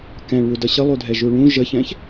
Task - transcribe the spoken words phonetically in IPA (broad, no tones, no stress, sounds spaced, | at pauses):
k ɛ̃ ɭ w u d ʌ ɕ ə lˠ u dʱ ɛ ʒ u ɭ ũ ʒ ə ç ɛ̃ ç